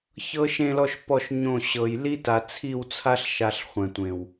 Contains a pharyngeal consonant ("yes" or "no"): no